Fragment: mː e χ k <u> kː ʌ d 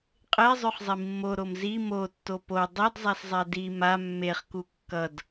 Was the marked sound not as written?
no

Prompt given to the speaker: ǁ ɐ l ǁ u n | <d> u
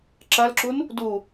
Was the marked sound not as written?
no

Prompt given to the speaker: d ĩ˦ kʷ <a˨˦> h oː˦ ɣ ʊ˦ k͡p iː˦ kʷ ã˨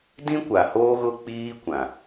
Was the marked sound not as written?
yes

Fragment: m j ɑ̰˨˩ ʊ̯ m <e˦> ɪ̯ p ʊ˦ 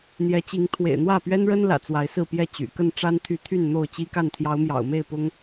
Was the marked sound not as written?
yes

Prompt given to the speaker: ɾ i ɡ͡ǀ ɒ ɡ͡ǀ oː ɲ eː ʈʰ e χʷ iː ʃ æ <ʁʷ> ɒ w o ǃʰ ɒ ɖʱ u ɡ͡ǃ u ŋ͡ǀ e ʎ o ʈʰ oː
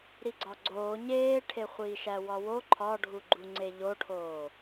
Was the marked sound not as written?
yes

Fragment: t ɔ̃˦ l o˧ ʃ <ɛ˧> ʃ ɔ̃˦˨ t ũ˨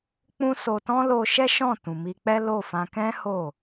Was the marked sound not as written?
yes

